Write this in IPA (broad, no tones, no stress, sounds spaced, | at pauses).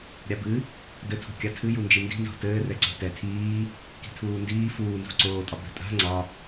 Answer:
ɾʲ a b ɨ | d ɘ tʰ o̤ kʲ a tʰ ɨ j u n d͡ʒ i n d i̤ n z o̤ t ɘː r ɛ ǀ o̤ t ɛ tʰ iː | k i̤ tʰ uː n d iː f uː n z ṳ ǀ oː tʼ ɒ b ɛ̤ tʼ a̤ ŋ͡ǀ ɒ